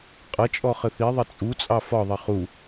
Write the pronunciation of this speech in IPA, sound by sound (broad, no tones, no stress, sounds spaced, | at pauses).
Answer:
qʼ ʌ t͡ʃʼ ɔ χ ə θ i ðˤ ʌ t͡sʼ u t͡sʼ ɑ f ɒ ðˤ ʌ χ u